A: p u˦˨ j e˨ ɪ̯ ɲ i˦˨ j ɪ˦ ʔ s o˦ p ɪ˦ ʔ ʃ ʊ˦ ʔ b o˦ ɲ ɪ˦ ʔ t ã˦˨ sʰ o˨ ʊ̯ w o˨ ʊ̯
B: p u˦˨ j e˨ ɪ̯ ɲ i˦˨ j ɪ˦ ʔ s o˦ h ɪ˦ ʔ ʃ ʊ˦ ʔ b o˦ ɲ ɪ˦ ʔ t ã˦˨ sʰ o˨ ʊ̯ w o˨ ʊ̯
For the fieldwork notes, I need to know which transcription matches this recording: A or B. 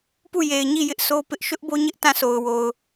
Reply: A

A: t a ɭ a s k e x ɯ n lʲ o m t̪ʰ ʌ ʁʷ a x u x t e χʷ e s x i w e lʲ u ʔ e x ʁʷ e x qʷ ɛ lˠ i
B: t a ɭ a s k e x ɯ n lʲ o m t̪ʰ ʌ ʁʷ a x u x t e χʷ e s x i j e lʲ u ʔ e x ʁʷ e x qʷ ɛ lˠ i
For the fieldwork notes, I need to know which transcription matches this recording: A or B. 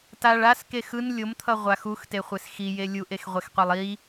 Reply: B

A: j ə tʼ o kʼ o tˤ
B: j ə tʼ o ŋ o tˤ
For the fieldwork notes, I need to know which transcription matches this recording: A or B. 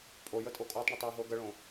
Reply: A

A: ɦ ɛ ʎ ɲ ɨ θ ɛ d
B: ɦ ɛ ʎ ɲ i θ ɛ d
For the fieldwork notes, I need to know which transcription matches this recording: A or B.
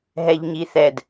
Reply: B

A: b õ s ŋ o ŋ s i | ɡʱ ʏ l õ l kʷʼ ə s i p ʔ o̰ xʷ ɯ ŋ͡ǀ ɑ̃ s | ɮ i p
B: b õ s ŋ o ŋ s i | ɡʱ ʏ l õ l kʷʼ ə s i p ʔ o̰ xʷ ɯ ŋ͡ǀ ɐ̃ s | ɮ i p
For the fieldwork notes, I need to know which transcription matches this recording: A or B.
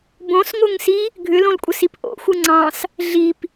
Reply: A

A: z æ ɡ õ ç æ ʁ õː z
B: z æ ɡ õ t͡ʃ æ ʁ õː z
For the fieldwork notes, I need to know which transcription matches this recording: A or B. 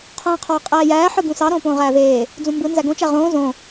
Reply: B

